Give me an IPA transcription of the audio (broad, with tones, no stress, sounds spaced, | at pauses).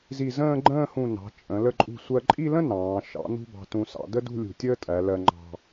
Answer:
z i˧˩ z ə̃ː˥˧ ɡ͡ǃ ə̃ː˥˧ h ũ˧˩ n ɑ̤˩˧ t͡ʃʼ ə̃˩˧ l ə˧ ǃʼ ṳ˧˩ sʷ ɜ˧ ǃʼ i˥˧ l ə̃˥ n ɑ̃ː˩˧ ʃ ɑ̰˩˧ n ṳ˧ b ɑ̤˧ t ũ˧ s ɑ̰˩˧ d ə˥ d ṳ˥˧ lʲ ṳ˧˩ tʲ əː˥ tʼ æ˩˧ l ɜ˧ ŋ͡ǃ ɑ̤˧